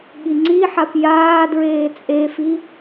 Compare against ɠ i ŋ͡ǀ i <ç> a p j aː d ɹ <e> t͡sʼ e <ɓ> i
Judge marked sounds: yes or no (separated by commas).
no, no, no